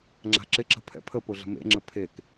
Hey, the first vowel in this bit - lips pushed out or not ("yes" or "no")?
no